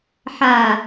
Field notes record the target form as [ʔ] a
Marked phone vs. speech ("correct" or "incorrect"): incorrect